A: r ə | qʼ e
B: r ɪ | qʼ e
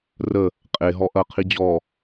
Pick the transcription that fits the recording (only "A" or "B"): A